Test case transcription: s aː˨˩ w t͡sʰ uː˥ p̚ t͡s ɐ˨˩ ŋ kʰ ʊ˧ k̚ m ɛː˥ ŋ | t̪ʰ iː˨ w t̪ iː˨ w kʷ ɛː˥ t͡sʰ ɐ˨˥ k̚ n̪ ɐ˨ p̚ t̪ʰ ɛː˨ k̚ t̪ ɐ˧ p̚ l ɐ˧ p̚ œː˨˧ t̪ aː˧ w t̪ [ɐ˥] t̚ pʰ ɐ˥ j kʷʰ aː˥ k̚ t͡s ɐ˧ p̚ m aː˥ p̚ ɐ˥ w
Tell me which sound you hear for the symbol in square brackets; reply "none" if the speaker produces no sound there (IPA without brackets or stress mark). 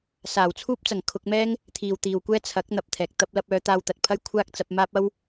ɐ˨